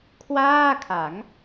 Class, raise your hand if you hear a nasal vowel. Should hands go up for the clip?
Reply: no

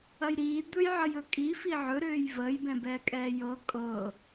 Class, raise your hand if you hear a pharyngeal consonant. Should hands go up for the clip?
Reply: yes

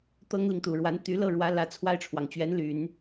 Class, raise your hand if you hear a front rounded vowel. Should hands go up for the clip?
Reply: yes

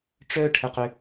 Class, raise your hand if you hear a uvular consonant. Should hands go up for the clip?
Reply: yes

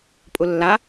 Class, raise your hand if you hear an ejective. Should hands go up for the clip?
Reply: yes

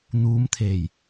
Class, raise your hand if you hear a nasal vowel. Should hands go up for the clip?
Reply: no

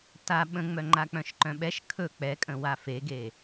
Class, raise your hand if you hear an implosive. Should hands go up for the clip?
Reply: yes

